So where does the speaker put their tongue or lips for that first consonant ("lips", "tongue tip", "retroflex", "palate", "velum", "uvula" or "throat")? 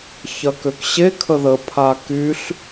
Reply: palate